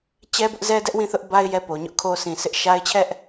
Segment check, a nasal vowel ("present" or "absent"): present